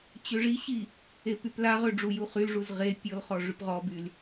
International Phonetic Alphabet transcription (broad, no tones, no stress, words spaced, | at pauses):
t͡ɕøʐiɕi | epyplaʁø ɖ͡ʐujuχylʐuz ʁe pʲɔlχɔ ʐypʁɔbyl